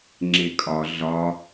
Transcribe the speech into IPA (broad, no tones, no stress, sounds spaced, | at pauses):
ŋ͡ǁ e kʼ ɒ ɮ ɒ